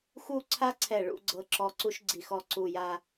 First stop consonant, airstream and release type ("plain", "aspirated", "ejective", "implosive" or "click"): click